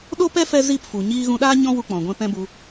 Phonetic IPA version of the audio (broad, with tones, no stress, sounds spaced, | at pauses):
ɗ o˦ p ɛ˦ f ɛ˦ z i˦˨ p f u˨ ɲ iː˧ ɣ ũ˧ ɗ aː˦ ɲ ɔ̃˦ w u˧ k͡p ɔ̃˨ ɡʷ ɛ̃˧ p ɛ̃˦ b u˧